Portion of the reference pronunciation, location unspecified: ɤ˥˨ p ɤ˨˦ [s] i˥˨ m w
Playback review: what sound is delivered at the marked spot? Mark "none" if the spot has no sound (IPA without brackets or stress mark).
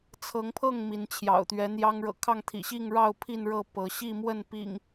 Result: ɕ